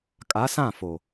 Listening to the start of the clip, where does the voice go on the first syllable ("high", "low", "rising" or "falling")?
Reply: rising